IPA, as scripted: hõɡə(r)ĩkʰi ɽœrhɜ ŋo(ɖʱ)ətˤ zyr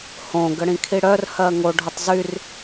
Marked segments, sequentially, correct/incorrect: incorrect: ɽ, correct

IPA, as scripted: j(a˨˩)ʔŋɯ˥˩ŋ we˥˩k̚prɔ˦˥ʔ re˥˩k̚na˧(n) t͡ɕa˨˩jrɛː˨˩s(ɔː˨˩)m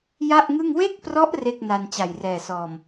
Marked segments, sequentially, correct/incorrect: incorrect: a˥˩, correct, correct

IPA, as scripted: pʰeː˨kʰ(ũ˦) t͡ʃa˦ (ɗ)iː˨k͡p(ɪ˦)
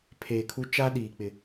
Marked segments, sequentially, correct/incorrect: incorrect: u˦, correct, incorrect: ɪ˨

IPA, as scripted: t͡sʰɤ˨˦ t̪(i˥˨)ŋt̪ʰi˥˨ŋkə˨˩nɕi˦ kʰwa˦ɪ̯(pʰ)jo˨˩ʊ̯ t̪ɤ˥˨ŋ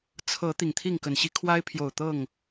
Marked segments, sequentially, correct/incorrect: incorrect: i˨˩, correct

